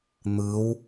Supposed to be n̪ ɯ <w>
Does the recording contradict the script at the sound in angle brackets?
no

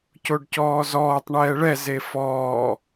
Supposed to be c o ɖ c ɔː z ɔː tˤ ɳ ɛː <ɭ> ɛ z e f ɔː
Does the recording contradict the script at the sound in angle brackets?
no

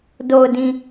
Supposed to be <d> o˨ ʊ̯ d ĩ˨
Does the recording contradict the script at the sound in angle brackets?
no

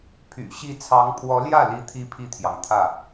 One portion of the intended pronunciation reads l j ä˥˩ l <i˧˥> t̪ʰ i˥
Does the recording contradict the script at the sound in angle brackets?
no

